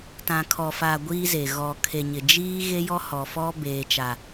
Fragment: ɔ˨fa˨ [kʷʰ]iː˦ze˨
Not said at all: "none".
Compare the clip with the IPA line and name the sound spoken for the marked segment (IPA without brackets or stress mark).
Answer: ɡʷ